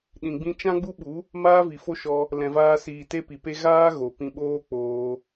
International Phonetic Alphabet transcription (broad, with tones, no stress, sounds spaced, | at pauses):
ɗ ĩ˨ ɡ͡b ĩ˧ t͡ʃ ã˦ ɡ͡b u˦ ɓ u˨˦ | m aː˦ v i˨ f o˦ ʃ ɔ˧ | l ɛ̃˨ v aː˧ s iː˨ t e˦ p i˨ p e˦ ɣ aː˦ ɣ o˨ p ĩ˧ ɓ oː˦ k͡p oː˧